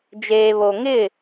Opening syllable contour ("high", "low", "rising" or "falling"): low